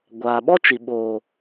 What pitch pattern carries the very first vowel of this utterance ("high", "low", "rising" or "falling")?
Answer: low